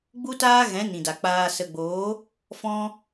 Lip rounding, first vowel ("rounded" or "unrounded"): rounded